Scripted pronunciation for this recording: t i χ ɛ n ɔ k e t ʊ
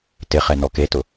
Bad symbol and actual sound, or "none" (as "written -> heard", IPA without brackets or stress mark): i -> ɪ